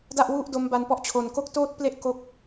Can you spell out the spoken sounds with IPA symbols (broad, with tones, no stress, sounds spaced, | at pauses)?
d a˥˩ ʔ w u˥˩ ʔ d o˦˥ m b a˧ n p ɔ˥˩ ʔ t͡ɕʰ o˨˩ n k o˥˩ k̚ t oː˥˩ t̚ p l e˥˩ ʔ k o˥˩ k̚